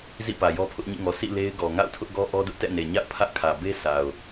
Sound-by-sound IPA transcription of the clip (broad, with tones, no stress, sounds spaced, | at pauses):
z ḭ˦˨ p ä˨ j ɔ˦ pʰ ʊ˦ ʔ ɲ ḭ˦˨ ŋ ɔ˨ sʰ ḭ˦˨ l e˦ ɪ̯ ɡ ɔ˨ ŋ a̰˦˨ ʊ̯ tʰ ʊ˦ ʔ ɡ ɔ˦ ʔ ɔ˦ d ʊ˦ ʔ t ɛ̰˦˨ n e˨ ɲ a̰˦˨ ʊ̯ pʰ ä˦ ʔ kʰ ä˨ b e˦ s a˨ ʊ̯